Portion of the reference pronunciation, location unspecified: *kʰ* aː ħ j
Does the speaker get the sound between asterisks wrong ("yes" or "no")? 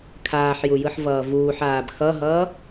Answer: no